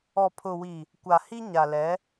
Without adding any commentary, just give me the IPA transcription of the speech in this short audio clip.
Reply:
ɔ˨ pʰ ʊ˨ w i˨ | kʷ a˨ h i˦ ɲ a˨ l ɛ˨˦

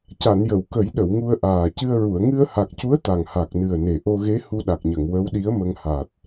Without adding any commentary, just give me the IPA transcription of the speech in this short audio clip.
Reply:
c a˨˩˨ n j ə˨˩˨ w k ə˨˩˦ j ɗ ə˨˩˨ w ŋ u˧ ə̯ ʔ aː˨˩ c ɨ˧ ə̯ ɹ u˨˩˨ ə̯ ŋ ɨ˧ ə̯ h a˨˩ k̚ c u˧˥ ə̯ t̪ a˨˩ ŋ h a˨˩ k̚ n ɨ˨˩ ə̯ n e˨˩ ʔ o˧ ɣ e˧˥ h u˧ ɗ a˨˩ k̚ ɲ ə˨˩˨ ŋ w ə˧˥ w ɗ i˧˥ ə̯ m ə˧ ŋ h a˨˩ t̚

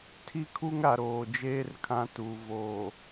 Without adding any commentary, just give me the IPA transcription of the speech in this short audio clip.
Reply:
tʰ i˦˨ kʰ u˦ ŋ ɾ a˨ ɾ oː˨ d͡ʒ eː˦ r kʰ ã˦ t u˨ v o˨

